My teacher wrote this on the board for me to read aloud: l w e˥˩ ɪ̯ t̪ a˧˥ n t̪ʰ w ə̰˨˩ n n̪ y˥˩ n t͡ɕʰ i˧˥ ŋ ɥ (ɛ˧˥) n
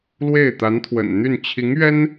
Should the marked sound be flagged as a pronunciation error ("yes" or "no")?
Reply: yes